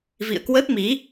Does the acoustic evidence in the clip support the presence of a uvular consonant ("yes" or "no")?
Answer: no